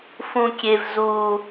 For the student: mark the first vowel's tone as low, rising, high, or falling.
high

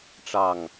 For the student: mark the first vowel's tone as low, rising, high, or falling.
falling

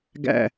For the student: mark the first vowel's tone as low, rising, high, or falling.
falling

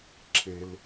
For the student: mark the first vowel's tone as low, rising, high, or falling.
low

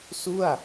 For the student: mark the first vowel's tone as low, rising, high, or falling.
falling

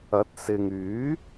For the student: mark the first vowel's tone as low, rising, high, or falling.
rising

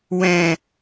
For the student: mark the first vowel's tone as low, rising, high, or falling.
low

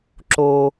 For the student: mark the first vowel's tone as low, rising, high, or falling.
low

